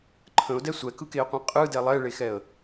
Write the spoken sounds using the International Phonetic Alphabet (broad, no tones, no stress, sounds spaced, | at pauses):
ǃʰ ə̃ ʊ̯ d ɛ sʷ ɛ k ɯ k e ə̯ qʷ ɛ̃ qʼ ɯ d ɛ lˠ ɛ ɭ e x ɛ ə̯